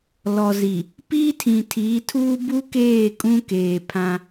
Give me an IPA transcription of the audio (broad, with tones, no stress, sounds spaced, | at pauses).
l ɔ˨ z i˨ | p iː˦ tʰ ĩ˨ tʰ iː˨˦ tʰ uː˦ b u˦ k eː˦˨ kʼ ũ˦ k eː˨ pʰ ã˦